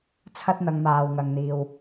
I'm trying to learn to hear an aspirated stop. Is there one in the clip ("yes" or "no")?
yes